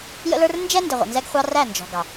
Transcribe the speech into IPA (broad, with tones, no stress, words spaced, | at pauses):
jə̰˦lə˞˦r nd͡ʒɛ˦ ndɪ˨ʁʷə̰˨nzɛ˦ɡ χʷɑ˦ ræ˦˨ nd͡ʒɔ̤˨ ɡɑ˨